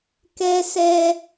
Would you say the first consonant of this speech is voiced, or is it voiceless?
voiceless